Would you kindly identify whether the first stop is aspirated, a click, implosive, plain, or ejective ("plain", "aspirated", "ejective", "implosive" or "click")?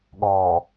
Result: implosive